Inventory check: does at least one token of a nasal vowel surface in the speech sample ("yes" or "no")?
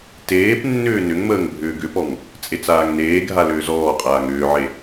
no